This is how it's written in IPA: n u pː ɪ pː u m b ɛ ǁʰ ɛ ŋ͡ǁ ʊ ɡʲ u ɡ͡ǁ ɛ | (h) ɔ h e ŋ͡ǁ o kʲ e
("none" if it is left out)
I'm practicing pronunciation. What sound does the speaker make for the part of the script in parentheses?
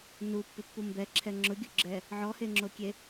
ʕ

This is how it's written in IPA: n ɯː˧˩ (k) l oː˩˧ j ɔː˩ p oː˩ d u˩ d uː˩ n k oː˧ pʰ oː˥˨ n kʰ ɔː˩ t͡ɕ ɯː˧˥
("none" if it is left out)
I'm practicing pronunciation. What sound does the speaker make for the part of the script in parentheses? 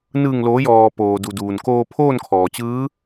ŋ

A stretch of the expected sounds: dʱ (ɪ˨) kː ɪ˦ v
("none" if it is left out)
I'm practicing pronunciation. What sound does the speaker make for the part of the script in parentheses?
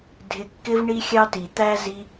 ɪ˧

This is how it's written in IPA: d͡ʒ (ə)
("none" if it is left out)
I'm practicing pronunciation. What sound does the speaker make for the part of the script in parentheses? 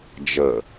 ə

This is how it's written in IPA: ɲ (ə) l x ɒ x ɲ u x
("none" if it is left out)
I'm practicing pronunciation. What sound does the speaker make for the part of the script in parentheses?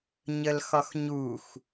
ə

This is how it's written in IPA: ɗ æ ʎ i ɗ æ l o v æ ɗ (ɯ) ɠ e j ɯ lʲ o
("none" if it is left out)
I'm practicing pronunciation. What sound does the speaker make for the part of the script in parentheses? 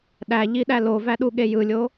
u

